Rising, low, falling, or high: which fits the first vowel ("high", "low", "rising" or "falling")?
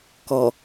low